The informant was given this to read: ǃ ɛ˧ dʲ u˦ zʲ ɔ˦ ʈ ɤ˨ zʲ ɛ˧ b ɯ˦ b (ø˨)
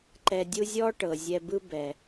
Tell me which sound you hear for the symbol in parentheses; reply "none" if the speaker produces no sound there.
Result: ɛ˨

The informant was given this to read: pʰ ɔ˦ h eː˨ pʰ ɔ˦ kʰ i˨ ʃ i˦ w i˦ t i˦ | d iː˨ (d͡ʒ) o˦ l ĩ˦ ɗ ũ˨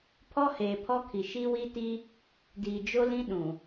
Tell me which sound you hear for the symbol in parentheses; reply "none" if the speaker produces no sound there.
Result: d͡ʒ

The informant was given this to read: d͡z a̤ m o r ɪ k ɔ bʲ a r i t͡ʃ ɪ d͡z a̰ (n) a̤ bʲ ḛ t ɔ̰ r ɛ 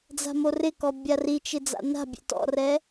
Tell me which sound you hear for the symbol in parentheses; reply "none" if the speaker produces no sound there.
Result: n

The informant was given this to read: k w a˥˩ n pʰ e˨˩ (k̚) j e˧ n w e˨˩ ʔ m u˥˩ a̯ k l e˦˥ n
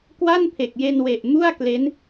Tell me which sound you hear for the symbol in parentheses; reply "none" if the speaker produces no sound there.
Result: k̚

